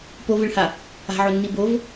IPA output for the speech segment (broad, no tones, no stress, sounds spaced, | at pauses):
p o v ɨ ɭ h a | a̤ ʕ o nː i b o v